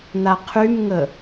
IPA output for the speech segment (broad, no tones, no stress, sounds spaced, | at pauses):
n̪ a qʰ y m ŋ ə